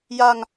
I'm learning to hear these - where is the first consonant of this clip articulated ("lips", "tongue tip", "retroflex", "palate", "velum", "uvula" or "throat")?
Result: palate